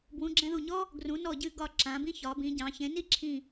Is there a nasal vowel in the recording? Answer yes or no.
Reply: yes